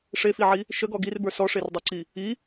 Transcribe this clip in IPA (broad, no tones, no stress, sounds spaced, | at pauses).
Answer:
ʂ e f i ʕ i | ʃ ə ɡ ɔ ɡ i r b ə˞ s ɔ ʂ e r dˤ e ǀ i | i